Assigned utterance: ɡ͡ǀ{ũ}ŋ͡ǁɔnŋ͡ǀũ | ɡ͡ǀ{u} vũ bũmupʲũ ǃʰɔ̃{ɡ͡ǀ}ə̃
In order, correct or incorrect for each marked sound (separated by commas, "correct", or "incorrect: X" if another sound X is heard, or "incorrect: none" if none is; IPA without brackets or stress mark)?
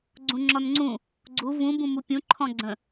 correct, correct, correct